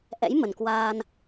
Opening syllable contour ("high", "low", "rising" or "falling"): rising